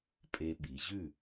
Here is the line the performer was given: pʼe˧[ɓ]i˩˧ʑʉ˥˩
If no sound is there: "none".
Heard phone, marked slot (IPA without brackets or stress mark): ɓ